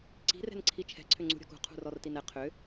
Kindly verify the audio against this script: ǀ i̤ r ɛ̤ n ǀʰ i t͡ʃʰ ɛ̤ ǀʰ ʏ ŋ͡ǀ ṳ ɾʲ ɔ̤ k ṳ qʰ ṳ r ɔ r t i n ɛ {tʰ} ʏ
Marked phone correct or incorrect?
incorrect